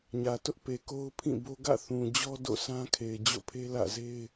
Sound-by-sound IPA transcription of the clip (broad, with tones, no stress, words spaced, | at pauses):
ɲä˨tʊ˦ʔpe˨ ko˦ʊ̯pʰĩ˦˨ bo˦ ɡä̰˦˨θũ˨d͡ʑɔ˦ do̰˦˨sã˦kʰe˨ɪ̯ d͡ʑo̰˦˨pʰe˦ lä̰˦˨ze˦ɪ̯